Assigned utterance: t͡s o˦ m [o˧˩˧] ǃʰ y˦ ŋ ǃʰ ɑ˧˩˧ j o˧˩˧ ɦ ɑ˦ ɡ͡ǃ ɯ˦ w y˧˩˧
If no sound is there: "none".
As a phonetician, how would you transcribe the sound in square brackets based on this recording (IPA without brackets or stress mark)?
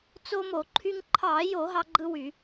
o˧˩˧